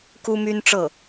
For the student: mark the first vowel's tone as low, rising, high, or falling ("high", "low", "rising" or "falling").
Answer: high